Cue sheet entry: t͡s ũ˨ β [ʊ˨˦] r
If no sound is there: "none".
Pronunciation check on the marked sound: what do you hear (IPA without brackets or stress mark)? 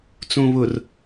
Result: ʊ˨